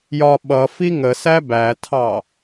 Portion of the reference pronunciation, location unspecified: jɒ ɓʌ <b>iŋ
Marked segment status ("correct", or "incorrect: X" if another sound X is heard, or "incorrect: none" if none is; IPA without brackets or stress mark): incorrect: f